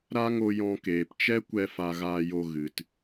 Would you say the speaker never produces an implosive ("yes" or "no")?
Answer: yes